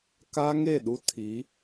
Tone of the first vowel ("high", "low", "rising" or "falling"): high